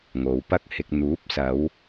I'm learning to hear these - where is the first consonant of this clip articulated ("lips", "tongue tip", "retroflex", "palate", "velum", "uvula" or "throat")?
velum